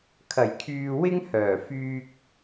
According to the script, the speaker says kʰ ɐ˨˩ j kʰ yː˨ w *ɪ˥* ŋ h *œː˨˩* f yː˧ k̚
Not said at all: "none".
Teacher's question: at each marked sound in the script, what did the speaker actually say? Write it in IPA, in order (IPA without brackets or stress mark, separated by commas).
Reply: ɪ˥, œː˨˩